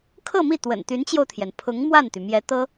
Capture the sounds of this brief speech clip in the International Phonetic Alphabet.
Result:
kʰɤ˥˧ mi˥˩ t̪wə̰˨˩nt̪y˧˥nt͡ɕjo˧ʊ̯t̪ʰjɛ˩n pʰʊ˧˥ŋ mwa˥˩nt̪y˩mjɛ˧˥ t̪ɤ˥

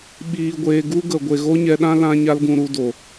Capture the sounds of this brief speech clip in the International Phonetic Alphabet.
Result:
ɓiː˧ɡʷeː˧ ɡu˦ɡə˨ ɡʷe˨ɣo˦ɲɛ˧ɗã˦ lã˦ɲa˦lɡũ˧ ɾu˧do˨

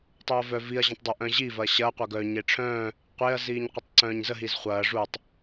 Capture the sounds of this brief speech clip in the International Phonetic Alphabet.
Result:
tˤœɐ̯vœ viɐ̯ ʑɐ̃tˤdˤə ʔœ̃ʑi vɐɕɐː qʷœɡœ ɲeʈ͡ʂʰœ̃ː | qʷeɐ̯ ziːɲqʷətˤǀœ̃ːɲzə ɦizχʷɐː ʐutˤ

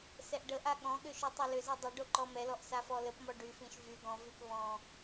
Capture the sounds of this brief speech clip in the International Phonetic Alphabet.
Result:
sɛʔɖəʔa ɠɔ̃ɠʏ ʃytˤɨlʏzi dˤə ɖoǃɔmɛlɔʔ safɔləpmɔ ɖyfĩʃ vy ɡɔ̃vyp βɔ̃

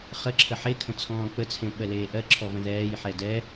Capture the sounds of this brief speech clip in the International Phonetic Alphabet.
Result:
χəǁʰə ħekʰə̃ t͡sʰɔ̃ːk͡pət͡sʰẽ ɓɜleːʔɜǁʰɔ və̃ðɛːjħɛ dɛ

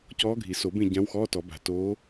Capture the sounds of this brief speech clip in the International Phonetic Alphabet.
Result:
cɔː˧˥ɡʱi˨˩˦ so˨˩˦bẽ˦˨ ɟã˧˥wxɔː˧˥˧tɔ˨˩˦ ba̤˨toː˧˥

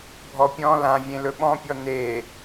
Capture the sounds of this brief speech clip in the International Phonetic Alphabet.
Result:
bʱɔpʲɔ̃ lã vʲẽlɵɓɔ̃pʲɔ ne

